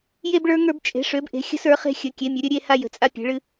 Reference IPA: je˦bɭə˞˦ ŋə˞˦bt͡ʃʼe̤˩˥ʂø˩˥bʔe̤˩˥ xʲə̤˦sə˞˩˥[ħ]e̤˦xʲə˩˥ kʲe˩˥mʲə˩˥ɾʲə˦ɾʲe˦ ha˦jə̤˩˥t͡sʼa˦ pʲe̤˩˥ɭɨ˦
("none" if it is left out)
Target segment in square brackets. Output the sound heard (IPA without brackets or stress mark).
χ